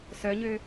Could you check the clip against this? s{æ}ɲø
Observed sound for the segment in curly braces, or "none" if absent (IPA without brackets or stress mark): œ